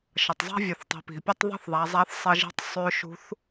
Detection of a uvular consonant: absent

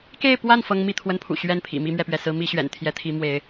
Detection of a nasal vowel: absent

